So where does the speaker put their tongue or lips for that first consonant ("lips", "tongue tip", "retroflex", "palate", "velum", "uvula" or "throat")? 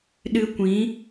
tongue tip